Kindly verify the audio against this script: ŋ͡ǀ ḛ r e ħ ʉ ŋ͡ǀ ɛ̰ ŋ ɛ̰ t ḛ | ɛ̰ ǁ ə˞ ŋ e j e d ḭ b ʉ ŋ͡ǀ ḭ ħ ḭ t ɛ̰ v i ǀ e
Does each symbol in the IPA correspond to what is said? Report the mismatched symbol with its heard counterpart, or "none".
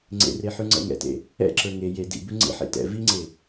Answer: ǀ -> ŋ͡ǀ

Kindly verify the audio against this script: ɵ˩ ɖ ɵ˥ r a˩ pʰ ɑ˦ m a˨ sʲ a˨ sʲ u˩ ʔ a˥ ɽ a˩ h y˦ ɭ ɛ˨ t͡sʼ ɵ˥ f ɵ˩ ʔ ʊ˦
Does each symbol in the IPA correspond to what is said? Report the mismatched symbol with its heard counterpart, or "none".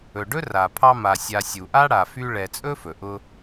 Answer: h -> f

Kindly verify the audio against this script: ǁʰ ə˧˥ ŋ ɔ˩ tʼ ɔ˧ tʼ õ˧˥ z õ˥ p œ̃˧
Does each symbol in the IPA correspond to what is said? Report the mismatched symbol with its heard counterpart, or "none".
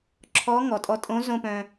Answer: ə˧˥ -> ɔ˧˥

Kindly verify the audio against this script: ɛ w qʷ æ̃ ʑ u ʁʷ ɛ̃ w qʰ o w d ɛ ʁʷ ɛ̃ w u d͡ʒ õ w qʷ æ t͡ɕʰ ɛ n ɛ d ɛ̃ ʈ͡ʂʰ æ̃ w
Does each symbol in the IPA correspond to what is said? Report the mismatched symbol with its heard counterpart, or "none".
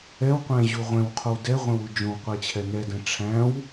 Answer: none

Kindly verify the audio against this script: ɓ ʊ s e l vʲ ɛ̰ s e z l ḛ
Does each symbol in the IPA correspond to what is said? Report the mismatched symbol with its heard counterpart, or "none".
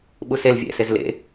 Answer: ʊ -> u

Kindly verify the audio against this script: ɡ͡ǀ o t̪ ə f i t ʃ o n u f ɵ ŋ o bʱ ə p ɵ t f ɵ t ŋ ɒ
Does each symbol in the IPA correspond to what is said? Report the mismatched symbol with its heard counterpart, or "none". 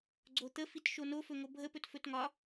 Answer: u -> o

